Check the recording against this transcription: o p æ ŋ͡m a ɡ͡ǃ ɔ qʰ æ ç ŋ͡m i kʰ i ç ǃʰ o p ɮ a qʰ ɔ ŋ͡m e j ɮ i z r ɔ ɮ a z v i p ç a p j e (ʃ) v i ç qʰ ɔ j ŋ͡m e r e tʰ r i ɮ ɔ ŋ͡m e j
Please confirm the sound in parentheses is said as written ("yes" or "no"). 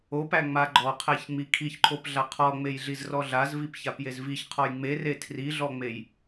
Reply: no